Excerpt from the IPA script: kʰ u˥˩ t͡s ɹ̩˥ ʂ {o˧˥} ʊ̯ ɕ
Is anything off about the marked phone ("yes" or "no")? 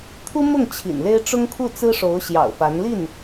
no